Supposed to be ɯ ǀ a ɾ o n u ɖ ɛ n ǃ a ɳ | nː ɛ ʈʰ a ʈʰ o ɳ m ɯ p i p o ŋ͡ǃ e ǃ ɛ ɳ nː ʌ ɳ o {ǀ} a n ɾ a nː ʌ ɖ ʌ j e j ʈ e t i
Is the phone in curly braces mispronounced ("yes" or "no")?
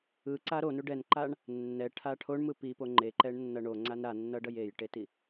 yes